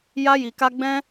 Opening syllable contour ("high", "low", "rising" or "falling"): high